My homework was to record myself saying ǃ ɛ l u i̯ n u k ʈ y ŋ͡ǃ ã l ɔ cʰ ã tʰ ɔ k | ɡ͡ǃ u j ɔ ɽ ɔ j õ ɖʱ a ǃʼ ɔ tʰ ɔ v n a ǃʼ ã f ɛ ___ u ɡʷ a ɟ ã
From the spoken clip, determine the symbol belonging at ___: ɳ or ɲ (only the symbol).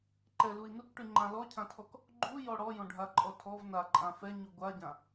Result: ɲ